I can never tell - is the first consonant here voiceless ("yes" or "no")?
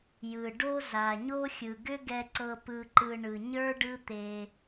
no